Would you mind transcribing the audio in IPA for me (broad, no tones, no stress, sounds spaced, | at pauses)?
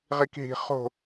ʁ i k ɦ i̤ χ o̤